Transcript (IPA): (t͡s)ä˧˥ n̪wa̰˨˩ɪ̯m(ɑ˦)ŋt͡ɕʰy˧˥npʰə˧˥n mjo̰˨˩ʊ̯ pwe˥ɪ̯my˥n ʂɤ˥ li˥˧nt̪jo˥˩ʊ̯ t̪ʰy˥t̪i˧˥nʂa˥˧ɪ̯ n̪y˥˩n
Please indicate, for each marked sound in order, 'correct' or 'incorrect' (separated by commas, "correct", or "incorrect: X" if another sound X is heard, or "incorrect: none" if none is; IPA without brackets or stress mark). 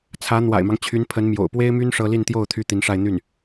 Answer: incorrect: t͡sʰ, correct